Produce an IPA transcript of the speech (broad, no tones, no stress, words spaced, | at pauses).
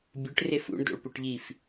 bʲuʈref ṵɳdo̰ɭpuʈʎif